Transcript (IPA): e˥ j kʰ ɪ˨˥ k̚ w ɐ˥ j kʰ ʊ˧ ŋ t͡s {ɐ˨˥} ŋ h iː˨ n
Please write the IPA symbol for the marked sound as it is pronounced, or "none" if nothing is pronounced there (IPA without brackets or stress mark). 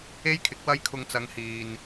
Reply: ɐ˨˧